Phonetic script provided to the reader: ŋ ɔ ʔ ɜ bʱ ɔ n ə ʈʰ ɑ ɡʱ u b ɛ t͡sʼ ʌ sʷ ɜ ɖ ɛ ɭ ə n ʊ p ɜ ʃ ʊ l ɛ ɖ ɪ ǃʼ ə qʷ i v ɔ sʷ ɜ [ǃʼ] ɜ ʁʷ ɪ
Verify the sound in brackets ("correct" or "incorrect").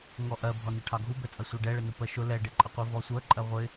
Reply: correct